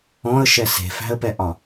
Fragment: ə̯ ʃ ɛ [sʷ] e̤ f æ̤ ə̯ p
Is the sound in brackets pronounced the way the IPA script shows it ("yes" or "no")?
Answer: no